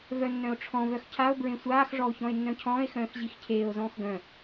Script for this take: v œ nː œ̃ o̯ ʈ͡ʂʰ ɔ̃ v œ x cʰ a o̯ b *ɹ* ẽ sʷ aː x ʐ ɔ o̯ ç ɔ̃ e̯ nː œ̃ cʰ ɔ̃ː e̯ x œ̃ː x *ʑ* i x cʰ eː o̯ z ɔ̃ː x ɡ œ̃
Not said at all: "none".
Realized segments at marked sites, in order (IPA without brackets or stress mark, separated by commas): ɹ, ʑ